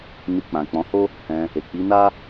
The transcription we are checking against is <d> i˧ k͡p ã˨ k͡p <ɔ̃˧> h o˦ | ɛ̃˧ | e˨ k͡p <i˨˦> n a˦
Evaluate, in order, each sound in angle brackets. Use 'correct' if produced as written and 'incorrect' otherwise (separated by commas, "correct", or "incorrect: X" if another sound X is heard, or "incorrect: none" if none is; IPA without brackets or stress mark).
incorrect: n, incorrect: ɔ̃˨˦, correct